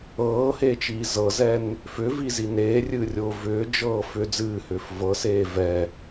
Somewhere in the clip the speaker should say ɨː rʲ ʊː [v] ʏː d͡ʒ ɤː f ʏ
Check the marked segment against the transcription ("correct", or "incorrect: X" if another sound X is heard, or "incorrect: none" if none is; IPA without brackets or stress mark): correct